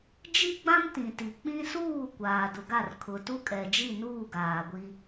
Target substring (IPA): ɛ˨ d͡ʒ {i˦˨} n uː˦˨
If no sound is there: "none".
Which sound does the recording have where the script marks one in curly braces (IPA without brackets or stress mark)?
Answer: i˦˨